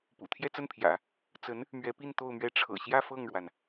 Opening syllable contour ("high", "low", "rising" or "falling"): low